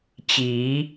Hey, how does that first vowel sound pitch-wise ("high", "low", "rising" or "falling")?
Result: rising